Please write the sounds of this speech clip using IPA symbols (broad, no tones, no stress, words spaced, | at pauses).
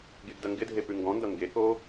ɡeɡdɐŋɡɪdʱe pʉŋɡɔ̃ndʌ ŋɡeko